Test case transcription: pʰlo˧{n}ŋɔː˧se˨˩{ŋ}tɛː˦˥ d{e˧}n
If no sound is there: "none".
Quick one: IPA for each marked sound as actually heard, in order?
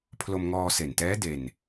m, n, e˧

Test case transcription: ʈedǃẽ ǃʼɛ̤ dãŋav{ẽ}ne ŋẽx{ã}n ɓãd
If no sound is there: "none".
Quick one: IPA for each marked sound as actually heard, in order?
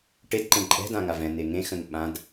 ɛ̃, ə̃

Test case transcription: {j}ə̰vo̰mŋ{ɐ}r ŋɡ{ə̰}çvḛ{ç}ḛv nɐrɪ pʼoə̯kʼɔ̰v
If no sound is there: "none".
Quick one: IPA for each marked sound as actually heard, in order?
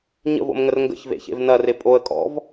ɲ, ə, ə̰, ç

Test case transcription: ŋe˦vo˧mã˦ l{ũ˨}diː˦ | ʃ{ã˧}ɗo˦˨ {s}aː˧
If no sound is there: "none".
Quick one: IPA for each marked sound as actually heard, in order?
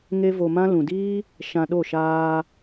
ũ˨, ã˧, ʃ

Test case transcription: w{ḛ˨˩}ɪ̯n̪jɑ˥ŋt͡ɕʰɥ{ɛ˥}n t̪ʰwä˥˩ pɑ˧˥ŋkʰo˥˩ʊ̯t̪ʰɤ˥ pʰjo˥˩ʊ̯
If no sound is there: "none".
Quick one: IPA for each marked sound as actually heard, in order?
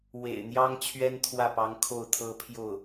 ḛ˨˩, ɛ˥

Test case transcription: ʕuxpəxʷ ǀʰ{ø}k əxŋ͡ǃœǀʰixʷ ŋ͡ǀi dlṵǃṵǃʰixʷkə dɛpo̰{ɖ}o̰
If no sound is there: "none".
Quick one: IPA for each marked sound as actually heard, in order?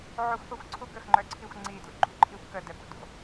u, d

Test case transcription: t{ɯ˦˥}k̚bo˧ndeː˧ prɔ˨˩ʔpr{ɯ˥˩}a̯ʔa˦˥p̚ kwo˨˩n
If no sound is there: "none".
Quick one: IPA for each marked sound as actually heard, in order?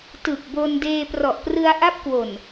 ɯ˨˩, ɯ˧

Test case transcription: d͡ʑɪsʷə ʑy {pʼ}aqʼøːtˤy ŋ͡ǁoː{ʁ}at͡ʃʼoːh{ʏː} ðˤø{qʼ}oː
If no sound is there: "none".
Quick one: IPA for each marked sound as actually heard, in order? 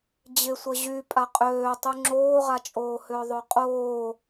pʼ, ʁ, ʏː, qʼ

